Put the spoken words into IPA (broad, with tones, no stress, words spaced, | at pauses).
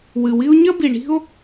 wɨ˨wi˦o̯ ɲɐ˦bi˨ɳi̤˦o̯